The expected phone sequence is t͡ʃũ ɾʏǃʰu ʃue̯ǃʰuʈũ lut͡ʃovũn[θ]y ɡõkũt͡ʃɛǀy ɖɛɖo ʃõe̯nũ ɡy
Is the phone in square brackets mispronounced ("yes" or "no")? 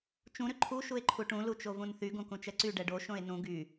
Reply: no